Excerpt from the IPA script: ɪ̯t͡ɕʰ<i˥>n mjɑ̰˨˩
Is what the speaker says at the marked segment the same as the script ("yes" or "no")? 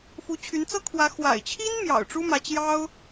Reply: yes